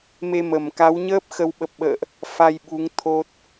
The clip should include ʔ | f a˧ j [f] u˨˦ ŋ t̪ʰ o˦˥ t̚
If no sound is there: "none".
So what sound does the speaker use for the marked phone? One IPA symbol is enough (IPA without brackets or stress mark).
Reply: ɓ